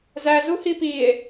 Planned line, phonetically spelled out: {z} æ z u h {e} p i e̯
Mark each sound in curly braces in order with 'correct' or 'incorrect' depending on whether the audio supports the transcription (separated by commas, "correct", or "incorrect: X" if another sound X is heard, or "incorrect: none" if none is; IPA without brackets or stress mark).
correct, incorrect: i